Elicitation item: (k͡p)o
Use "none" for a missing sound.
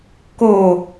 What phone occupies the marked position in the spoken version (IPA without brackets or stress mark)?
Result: k